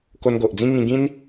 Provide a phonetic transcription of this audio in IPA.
k o˧ n ɡ o˨ ʔ d͡z ĩ˦ ŋ ĩ˧ ɡ ĩ˦ n

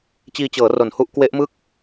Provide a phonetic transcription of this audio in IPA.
t͡ɕ iː˧ t͡ɕ ɤː˩˦ r o˨˩ n h u˥˩ ʔ k w e˦˥ ʔ m ɯ˥˩ k̚

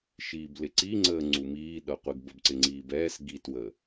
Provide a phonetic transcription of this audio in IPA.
ʃ iː b l ɪ ǀ i ŋ͡ǀ əː ŋ͡ǀ u m iː ɗ ʌ qʷ ɪ ɡ b ə b ǀ ɪ ŋ͡ǀ iː b ɛː s ɡ i t w ə

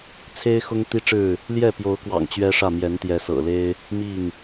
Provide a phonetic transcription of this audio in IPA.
t͡sʰ e˦ ɪ̯ x ʊ˦ ŋ t̪ i˦ ʈ͡ʂ ɻ̩˥˨ | l j ɛ˥˨ p j o˨˦ ʊ̯ k w ɑ̰˨˩ ŋ t͡ɕ ɥ ɛ˦ ʂ ä˥˨ m j ɛ˨˦ n t̪ j ɛ˨˦ s ɤ̰˨˩ l e˦ ɪ̯ | m i˥˨ ŋ

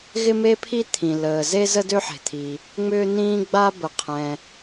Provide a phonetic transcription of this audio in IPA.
ɣ ɪ˥ m e˥ pʰ i˥ t̪ʰ ĩ˩ l əː˩ z e˥ z ə˥ d ø˥ ħ e̤˩ t̪ʰ i˩ | ŋ͡m ʏː˥ n̪ ĩː˥ ɡ͡b a˥ b ə˩ qʰ ɛ̃˩

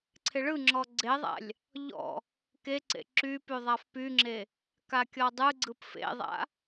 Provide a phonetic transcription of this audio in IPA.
ǀʰ ɪ ɭ ɯ ŋ͡ǁ ɔ ɡ͡ǀ e ðˤ a̰ lʲ | ʎ ɔ̰ | k e ǀ ḛ ǁ y p y ðˤ a f p y ŋ͡ǁ e | k a kʲ ɔ dˤ ɯ ɡ͡ǀ ɯ p f ḛ ðˤ a̰

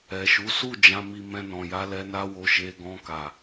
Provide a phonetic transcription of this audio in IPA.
ɛ˨ ʃ u˨˦ s u˦˨ d͡ʒ ã˨˦ m i˧ m ɛ̃˧ n ɔ̃˨ j a˧ l ɛ˧ n a˦ w o˧ ʃ e˧ ɡ ɔ̃˧ k a˨

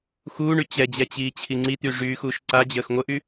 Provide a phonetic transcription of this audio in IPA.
x uː ɳ y t͡ɕ ɛ d͡ʑ ɛ t͡ɕ iː t͡ɕʰ i ŋ͡ǀ i t̪ y ʐ yː x uː ʃ ǀ a d͡ʑ əː x ŋʷ ə ʔ y

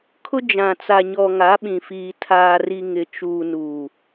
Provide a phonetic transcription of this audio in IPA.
kʰ ʊ˦ d͡ʒ ã˨ t͡s a˨ ɲ ɔ˨ ŋ a˨˦ ɓ ĩ˨ f iː˨ tʰ aː˨ r i˨ ŋ ɪ˨ t͡ʃ uː˨ n uː˨

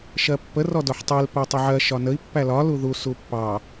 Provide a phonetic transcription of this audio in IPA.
ʃ ɜ pː ə r ɔ d ɔ ħ tˤ i l p ɜ tˤ ə ʕ ɜ ʃ ɒ n ə i̯ pː æ l ɒ l u ð u s u pː ɑ

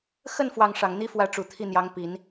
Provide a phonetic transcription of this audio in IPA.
x ə˥˧ n f w ɑ˥˩ ŋ ʂ ɑ˨˩ ŋ n̪ i˥ f w ä˥˩ ʈ͡ʂ u˨˩ t̪ʰ i˥˩ n̪ j ɑ˧˥ ŋ p i˨˩˦ n

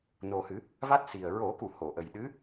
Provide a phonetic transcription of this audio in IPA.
n o˨˩ h ɨ˨˩˦ | v a˦˥ t̚ s i˨˩ ə̯ ɹ o˨˩˦ k u˨˩˨ h o˨˩˨ ʔ ə˨˩ j ɗ ɨ˧˥

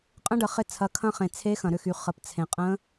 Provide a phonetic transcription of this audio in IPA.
qʼ ə̃˧˥ ɖ ə˩ χ ɪ˧ t͡sʰ ɐ˩˧ kʰ ɐ̃˧˥ χ ẽ˩ t͡sʰ e˧˥ x ɐ̃˩ ɾ ʏ˧ x y˩ χ ə˩ p t͡sʰ ẽ˩ qʼ ə̃˧˥

